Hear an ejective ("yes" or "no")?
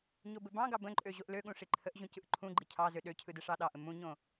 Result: yes